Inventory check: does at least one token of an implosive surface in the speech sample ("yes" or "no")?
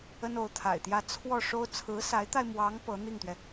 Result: no